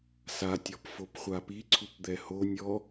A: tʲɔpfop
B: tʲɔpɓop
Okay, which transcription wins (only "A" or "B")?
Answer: A